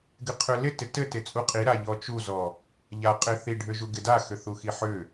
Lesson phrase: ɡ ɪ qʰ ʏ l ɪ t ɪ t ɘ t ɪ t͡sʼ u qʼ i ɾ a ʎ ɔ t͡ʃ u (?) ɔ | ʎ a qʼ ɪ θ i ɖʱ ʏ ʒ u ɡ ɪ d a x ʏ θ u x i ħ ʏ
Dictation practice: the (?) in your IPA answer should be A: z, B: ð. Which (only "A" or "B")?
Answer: A